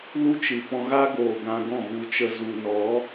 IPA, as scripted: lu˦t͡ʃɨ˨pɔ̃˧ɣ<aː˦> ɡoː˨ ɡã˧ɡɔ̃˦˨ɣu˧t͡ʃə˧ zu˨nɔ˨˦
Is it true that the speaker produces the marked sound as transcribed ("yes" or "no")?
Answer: no